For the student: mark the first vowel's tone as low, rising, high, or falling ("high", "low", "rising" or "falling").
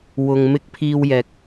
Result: low